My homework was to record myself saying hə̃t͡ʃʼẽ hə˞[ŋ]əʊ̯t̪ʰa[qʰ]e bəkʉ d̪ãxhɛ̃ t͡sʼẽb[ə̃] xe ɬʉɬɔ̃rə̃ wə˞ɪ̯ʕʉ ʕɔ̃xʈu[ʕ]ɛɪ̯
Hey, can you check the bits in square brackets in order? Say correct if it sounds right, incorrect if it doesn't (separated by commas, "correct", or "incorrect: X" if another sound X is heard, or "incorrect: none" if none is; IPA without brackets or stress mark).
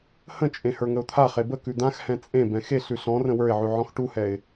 correct, incorrect: χ, incorrect: ɛ̃, incorrect: h